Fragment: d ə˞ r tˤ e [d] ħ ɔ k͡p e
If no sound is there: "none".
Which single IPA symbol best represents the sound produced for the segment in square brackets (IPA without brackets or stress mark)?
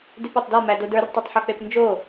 tˤ